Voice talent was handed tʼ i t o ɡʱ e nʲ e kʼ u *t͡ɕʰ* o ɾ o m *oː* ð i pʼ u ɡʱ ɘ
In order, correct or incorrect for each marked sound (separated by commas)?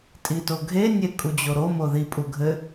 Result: incorrect, incorrect